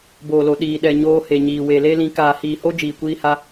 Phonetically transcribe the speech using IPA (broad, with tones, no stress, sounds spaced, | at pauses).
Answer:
b oː˨ l o˨ ɗ iː˨ ɗ ɛ˨ ɲ oː˧ h e˨ ɲ iː˨ w e˨ l e˦ l ĩ˧ k aː˨ h iː˨ h o˦ d͡ʒ iː˨ kʷ iː˧ h a˧